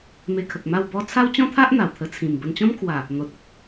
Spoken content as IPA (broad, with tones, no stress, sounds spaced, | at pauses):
m e˧ kʰ ə˨ k̚ m a˥˧ w b ɔ˦ t͡sʰ a˦ w t͡ɕ ɔ̃˦ t̪ʰ a˦ ʔ n̪ a˨˩ w t̪ʰ ə˧ t͡sʰ ĩ˨˩ m b ə˧ n t͡ɕ ɔ̃˦ m kʰ w a˨˩ | n̪ o˨ t̚ ə˦ k̚